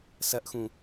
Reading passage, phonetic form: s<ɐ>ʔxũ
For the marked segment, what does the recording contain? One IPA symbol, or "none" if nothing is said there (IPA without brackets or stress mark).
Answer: ɐ